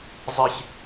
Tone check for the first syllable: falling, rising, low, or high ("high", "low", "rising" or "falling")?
high